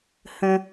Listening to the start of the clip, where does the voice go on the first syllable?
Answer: low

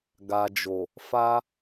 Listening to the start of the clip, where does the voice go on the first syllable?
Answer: low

